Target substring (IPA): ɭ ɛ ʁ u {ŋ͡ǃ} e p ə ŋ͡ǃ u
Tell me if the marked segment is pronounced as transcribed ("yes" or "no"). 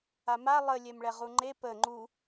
yes